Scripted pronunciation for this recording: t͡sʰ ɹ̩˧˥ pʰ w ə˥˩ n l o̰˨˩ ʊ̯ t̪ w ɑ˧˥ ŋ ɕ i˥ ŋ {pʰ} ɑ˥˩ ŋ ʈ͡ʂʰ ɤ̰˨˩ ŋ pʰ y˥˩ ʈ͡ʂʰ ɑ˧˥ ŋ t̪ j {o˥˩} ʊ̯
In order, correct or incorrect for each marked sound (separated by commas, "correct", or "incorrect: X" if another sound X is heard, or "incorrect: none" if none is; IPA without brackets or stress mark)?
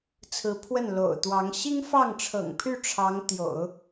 incorrect: f, incorrect: o̰˨˩˦